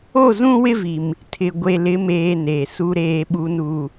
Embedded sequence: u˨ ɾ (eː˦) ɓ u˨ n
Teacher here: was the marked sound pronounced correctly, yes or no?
no